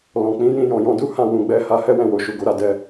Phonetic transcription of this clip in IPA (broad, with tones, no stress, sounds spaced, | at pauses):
l ɔ̃˨ k͡p ĩ˨˦ j ĩ˧ j ɔ̃˨ j ɔ̃˧ d u˦ h ã˦˨ w ũ˨ ɡ͡b ɛ˧ h a˧ h ɛ˦ w ɛ̃˦˨ w o˨ ʃ u˨ ɡ o˨˦ ɾ a˧ d ɛ˧